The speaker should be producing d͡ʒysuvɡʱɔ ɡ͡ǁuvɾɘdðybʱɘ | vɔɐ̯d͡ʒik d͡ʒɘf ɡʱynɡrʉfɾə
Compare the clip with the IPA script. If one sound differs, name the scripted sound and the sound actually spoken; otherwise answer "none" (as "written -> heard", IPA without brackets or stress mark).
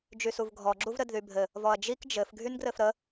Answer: ʉ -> ɘ